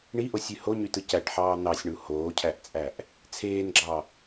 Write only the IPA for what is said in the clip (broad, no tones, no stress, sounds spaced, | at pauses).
ɳ i ʔ o sʲ y h o ɲ y t ɯ c æ ʈ ħ ɑː n̪ ɑ sʲ ɳ u h oː cʰ æ ʔ t͡sʼ æ ʔ | t͡sʰ eː n ɡ͡ǁ ɑ